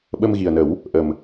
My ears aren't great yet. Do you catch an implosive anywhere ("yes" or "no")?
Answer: yes